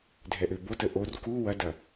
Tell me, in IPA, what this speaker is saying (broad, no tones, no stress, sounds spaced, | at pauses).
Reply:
dʱ ɛ ʔ ø b o t ə ʔ o r k u w ɐ d ɐ